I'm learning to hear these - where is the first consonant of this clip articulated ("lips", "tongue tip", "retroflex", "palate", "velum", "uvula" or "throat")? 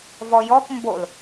lips